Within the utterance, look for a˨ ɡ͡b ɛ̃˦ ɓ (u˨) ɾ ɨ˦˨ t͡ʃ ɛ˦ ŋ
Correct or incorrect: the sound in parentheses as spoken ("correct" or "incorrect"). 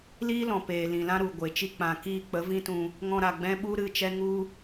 incorrect